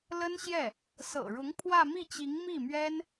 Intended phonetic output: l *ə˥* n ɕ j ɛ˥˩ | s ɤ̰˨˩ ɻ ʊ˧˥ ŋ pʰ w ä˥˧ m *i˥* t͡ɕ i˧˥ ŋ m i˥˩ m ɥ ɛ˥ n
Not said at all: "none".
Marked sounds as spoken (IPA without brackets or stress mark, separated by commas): ə˥, i˥˩